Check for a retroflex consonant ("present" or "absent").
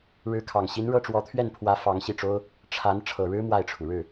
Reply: present